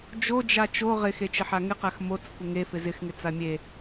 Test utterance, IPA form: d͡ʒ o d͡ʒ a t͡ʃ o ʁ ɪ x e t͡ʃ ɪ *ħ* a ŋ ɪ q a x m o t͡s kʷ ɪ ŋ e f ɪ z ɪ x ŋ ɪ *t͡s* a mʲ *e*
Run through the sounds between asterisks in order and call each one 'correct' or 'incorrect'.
correct, correct, correct

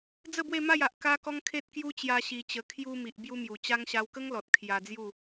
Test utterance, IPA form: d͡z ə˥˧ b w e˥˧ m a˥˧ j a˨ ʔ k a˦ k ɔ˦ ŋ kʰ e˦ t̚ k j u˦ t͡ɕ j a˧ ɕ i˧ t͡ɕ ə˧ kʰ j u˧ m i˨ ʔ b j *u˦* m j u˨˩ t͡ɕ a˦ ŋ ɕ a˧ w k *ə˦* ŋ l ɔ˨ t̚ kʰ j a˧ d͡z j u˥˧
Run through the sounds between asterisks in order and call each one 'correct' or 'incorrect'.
correct, correct

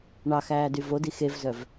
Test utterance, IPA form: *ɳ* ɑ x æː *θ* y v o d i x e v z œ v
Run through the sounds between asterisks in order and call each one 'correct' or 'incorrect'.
correct, incorrect

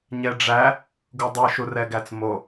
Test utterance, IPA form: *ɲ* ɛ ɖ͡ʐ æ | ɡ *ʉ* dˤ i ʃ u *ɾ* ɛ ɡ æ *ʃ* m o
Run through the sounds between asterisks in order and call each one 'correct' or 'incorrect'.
correct, incorrect, incorrect, incorrect

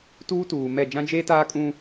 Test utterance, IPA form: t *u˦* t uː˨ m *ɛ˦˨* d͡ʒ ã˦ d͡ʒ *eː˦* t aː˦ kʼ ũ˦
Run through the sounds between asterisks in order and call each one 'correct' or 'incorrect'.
incorrect, correct, correct

